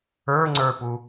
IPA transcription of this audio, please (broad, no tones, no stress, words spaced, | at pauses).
ə˞ŋ͡ǀə˞pu